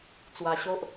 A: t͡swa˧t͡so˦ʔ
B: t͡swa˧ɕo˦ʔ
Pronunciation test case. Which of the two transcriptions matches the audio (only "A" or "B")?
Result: B